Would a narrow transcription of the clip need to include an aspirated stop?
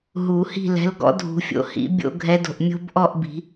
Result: no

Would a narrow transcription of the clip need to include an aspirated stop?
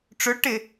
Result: no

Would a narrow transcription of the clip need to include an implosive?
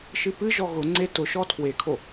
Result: no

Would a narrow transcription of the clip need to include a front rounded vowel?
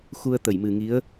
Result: no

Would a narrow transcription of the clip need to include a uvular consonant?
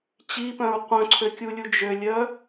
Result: yes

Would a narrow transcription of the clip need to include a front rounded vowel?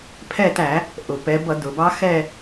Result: no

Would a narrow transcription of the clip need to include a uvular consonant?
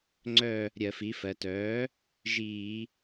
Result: no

